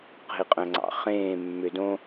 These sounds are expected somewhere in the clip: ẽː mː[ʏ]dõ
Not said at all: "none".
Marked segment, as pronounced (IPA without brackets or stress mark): ʏ